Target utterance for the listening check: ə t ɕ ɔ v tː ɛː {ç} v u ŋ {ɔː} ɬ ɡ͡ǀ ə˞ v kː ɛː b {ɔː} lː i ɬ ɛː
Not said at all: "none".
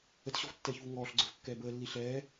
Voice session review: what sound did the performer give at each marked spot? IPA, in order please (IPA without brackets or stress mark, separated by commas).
ç, ɔː, əː